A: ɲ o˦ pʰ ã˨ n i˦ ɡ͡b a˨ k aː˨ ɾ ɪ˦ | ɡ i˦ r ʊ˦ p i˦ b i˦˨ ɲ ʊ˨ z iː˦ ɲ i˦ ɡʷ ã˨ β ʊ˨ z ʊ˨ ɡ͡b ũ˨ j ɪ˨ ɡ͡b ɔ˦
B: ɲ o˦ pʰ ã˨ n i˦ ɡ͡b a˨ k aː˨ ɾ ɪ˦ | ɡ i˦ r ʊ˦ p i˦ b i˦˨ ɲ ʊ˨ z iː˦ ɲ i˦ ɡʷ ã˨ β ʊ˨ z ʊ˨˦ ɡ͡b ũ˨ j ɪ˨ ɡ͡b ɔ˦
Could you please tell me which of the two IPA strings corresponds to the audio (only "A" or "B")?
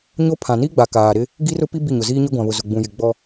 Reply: A